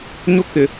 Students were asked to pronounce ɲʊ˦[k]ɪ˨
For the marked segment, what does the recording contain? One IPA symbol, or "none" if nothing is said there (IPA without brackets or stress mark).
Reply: k